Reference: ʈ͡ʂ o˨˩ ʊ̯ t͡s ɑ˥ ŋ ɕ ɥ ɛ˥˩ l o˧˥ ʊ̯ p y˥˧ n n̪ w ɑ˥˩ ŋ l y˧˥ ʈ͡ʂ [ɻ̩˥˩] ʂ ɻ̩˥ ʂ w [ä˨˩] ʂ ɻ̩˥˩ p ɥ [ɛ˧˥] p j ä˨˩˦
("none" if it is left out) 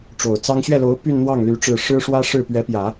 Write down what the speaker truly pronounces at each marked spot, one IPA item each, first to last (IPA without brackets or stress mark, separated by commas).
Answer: ɻ̩˥˩, ä˥, ɛ˧˥